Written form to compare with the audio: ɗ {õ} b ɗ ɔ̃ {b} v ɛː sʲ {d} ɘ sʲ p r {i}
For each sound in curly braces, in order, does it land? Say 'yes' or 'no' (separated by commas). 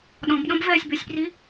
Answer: no, yes, no, yes